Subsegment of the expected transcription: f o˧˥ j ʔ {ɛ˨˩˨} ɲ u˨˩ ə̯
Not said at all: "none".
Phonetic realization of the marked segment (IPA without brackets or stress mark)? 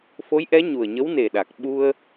ɛ˧˥